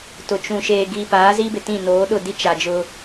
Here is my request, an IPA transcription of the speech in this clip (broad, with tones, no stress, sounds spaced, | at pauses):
t ʊ˨ t͡ʃ ũ˨ ʃ eː˨ ɡ i˨ p aː˨˦ z i˦ b ɪ˨ t ĩ˦˨ n oː˨˦ ɗ ʊ˦˨ d i˦ t͡ʃ a˨ d͡ʒ ʊ˦